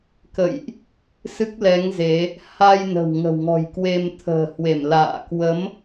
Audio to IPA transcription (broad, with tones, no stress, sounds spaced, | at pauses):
k ə̰˧˨ j ʔ | s ɨ˦˥ k̚ l ɛ˨˦ ŋ z e˨˦ | h a˧ j n ə̤˨˩ w ŋ ə̤˨˩ w ŋ ɔ̤˨˩ j k w e˧ m t̪ʰ ə̤ː˨˩ h w e˧˩ m l a̰ː˧˨ k w ə˨˦ m